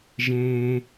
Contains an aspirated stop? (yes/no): no